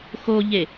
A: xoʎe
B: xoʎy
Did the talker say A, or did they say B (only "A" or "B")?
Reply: A